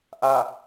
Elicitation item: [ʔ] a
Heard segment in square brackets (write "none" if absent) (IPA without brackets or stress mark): ʔ